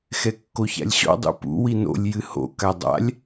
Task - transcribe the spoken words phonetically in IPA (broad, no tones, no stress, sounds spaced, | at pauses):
x ɛ kː o ç a̰ lʲ ɕ ɔ̰ dˤ ṵ p ṵ w i n o̰ lʲ j ɨ h o̰ k a dˤ a̰ lʲ